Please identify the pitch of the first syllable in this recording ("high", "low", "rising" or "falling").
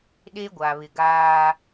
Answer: high